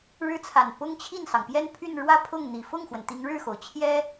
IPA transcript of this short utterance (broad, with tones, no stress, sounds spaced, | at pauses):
ɻ ɻ̩˥ t͡sʰ a˨˩ n p ʊ˥ ŋ t͡ɕʰ i˥˩ n s ɑ˩ ŋ p j ɛ˥˧ n pʰ y˥˧ n ɻ w ä˥˧ pʰ ʊ˥˩ ŋ n̪ i˨˩ f ʊ˥˩ ŋ x w ə˩ n t̪ i˧˥ ŋ ɻ ɻ̩˥˩ x o˩ ʊ̯ t͡ɕʰ j ɛ˥